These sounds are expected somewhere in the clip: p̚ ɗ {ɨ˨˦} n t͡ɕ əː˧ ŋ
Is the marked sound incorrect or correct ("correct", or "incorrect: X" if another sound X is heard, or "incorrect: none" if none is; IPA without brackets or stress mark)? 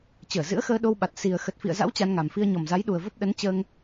incorrect: ə˨˦